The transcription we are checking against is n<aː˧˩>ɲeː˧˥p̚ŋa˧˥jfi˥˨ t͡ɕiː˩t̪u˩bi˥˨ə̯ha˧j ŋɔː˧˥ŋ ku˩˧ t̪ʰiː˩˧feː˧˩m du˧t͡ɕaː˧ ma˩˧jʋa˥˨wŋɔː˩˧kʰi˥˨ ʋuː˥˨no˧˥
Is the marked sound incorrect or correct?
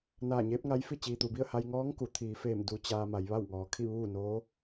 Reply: correct